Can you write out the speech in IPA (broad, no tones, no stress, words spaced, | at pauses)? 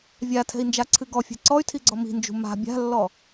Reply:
vʲatʰɛ̤i̯nd͡ʒaǀʰɨ ɡɔfʲɛ̤ ǀɔy̯tʰiɡ͡ǀɔ mi̤nd͡ʒṳ ma̤ bʲa̤lːɔ